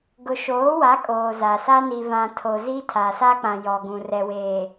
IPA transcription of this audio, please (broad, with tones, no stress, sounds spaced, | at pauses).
ɡ ʊ˨ ʃ oː˨˦ w a˨˦ kʼ oː˨ z a˨ s a˦ n i˨ v ã˨ tʰ o˨ z i˦ tʰ a˨ s a˦ k͡p ã˨ j ɔ˨ ɡ ũ˨ r ɛ˨ w eː˨